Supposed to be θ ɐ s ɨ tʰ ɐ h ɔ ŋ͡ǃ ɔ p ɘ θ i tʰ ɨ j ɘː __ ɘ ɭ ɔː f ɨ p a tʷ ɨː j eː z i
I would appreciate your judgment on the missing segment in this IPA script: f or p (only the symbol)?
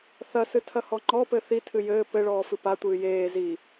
p